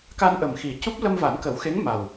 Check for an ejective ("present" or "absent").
absent